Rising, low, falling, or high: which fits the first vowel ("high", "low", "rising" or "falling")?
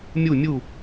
falling